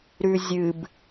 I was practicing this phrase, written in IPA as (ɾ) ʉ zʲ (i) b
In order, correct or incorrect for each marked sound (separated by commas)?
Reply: correct, incorrect